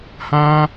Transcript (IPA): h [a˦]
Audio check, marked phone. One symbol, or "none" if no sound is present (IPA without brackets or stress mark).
ã˦